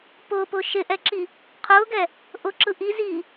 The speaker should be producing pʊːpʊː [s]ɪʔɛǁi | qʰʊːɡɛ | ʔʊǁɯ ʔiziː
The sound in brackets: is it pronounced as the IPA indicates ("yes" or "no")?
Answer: no